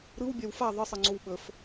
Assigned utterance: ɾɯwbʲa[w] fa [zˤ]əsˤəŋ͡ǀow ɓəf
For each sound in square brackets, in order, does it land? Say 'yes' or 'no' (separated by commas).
yes, no